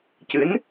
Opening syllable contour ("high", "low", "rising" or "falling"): rising